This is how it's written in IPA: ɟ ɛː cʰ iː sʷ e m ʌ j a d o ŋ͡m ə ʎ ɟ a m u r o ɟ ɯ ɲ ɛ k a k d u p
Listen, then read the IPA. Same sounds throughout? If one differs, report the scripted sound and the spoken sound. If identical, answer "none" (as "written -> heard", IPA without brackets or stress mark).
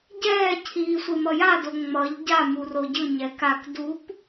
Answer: ə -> ʌ